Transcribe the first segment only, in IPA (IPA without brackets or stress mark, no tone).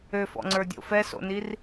ø